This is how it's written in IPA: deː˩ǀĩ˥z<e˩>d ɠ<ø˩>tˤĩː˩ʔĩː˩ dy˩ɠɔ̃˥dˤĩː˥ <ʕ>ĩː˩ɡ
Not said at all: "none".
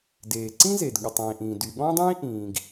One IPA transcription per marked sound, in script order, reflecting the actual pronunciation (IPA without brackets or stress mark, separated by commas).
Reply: e˩, u˩, ʔ